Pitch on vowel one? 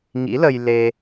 rising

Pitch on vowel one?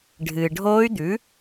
low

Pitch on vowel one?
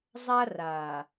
high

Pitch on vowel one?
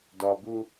low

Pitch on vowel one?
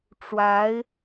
rising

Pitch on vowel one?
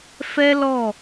high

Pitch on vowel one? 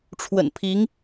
low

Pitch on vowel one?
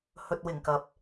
low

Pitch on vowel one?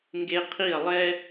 high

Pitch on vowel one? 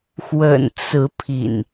low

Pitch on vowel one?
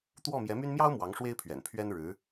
falling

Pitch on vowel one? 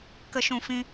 high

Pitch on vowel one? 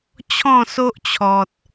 falling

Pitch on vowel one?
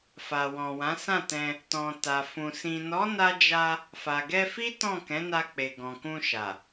low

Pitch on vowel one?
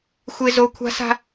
high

